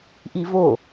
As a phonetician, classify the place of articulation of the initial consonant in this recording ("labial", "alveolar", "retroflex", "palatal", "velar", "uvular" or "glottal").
glottal